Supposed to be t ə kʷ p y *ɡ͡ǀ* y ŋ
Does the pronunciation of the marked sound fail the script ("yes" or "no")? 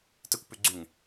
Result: no